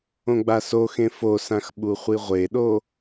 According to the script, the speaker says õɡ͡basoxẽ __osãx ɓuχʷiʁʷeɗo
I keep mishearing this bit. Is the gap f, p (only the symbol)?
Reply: f